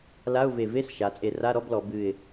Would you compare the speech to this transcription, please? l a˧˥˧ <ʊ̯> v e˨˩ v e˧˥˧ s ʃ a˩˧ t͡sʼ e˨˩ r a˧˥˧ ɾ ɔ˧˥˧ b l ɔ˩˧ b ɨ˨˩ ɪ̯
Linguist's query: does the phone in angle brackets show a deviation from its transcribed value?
no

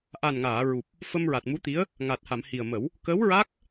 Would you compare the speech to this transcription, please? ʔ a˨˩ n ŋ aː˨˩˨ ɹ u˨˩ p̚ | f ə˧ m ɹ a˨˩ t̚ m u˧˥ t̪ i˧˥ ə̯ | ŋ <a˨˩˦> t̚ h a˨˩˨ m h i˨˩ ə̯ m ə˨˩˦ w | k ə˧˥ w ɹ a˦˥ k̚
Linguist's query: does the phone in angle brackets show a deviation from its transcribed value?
yes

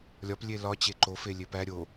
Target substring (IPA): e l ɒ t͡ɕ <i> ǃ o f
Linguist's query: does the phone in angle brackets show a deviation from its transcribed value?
yes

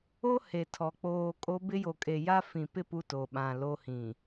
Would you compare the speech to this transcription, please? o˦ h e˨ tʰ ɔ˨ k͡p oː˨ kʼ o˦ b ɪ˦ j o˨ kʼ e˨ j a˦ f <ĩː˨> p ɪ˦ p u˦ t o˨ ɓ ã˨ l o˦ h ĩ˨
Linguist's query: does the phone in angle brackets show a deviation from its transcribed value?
yes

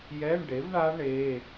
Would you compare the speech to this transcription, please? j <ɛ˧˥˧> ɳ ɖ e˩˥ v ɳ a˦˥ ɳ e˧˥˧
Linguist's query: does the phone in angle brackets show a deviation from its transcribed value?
no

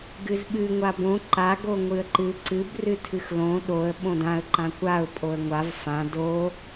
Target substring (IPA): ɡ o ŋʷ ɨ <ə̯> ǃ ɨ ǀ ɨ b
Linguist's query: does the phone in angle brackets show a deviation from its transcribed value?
no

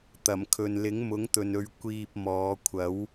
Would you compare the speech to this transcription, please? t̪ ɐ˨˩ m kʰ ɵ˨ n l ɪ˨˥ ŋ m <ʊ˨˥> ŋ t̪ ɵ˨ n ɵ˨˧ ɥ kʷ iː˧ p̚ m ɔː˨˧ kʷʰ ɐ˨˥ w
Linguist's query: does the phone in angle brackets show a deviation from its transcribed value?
no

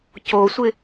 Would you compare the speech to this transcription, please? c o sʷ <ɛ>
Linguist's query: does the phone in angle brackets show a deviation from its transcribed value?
yes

